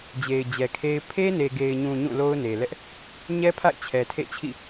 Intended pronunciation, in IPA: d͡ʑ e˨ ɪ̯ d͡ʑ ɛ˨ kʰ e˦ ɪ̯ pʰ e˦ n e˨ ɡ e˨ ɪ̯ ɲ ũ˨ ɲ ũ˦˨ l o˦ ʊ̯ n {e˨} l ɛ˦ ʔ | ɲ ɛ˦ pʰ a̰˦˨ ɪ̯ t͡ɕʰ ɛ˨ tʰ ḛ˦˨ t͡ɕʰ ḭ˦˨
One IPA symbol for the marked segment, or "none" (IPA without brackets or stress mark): e˨